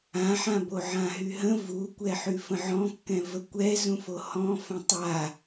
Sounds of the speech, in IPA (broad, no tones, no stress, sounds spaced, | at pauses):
ã ħ ã b o ʕ ã ɦ y ɦ ə̃ v u kʷ ɛ ħ y f ə̃ ʕ ɔ̃ kː ɛ̃ v ə kʷ ɛ z ũ f o h ɔ̃ f ə̃ tˤ a